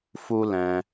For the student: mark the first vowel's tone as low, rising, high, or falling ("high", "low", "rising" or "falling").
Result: high